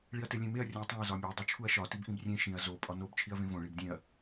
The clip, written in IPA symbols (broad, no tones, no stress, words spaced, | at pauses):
ɭiɐ̯telʲẽmeɐ̯ rʲõɐ̯tˤẽɐ̯ zɒmʲæ dˤut͡ʃʰuɐ̯ʃɒ tibʔĩbrʲẽ ʃĩɐ̯ zo pʼɒnob t͡ʃʰiɐ̯vẽvõ ɭibdʲẽɐ̯